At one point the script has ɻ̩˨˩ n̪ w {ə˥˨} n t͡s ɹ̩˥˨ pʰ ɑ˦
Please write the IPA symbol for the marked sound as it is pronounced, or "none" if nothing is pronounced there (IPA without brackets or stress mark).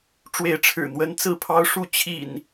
ə˦